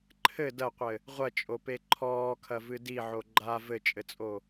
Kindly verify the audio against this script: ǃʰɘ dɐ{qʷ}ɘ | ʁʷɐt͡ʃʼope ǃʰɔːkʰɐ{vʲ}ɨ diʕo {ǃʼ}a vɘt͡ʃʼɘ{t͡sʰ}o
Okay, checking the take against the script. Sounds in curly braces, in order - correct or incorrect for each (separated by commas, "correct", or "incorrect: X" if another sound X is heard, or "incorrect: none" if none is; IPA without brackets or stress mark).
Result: correct, incorrect: v, incorrect: ɡ͡ǃ, incorrect: t͡sʼ